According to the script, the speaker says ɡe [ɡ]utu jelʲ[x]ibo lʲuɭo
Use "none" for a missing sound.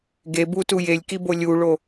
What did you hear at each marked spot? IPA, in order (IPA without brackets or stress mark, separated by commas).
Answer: b, k